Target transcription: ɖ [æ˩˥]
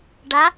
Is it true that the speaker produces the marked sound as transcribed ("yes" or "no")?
no